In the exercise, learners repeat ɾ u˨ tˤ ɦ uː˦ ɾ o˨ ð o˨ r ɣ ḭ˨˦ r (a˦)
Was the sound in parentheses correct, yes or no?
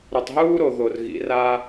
yes